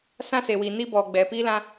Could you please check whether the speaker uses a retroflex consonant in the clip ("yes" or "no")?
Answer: no